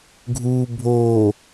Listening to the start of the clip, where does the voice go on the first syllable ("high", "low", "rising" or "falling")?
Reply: low